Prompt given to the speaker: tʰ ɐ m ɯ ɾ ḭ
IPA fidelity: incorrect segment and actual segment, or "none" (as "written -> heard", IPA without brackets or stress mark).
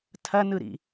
m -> n